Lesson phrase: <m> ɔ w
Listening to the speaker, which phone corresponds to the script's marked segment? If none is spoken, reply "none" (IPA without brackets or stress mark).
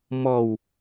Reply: m